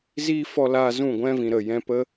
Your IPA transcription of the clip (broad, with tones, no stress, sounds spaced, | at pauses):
z iː˦ f ɔ˧ l aː˧ z ũ˦˨ ɡʷ ɛ̃˦ v ĩ˨ ɾ ə˦˨ j ɛ̃˦ p ə˦